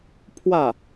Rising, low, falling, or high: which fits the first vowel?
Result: falling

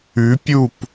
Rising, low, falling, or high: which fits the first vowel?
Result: rising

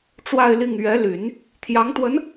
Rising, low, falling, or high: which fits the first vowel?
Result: falling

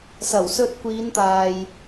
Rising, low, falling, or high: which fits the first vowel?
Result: low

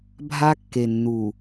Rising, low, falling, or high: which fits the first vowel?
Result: high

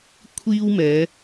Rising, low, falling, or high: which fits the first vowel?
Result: high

